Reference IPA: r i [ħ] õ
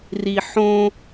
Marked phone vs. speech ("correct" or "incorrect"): correct